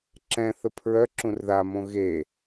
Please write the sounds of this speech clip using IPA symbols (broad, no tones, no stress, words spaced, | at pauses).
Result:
ǁɛ̃θə pʰɹœ ǁũrðamõ ɣe